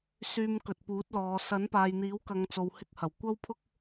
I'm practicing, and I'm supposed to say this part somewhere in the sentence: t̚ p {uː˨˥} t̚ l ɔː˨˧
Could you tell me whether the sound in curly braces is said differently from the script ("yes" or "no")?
no